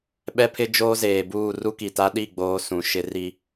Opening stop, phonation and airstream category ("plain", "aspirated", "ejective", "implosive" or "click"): implosive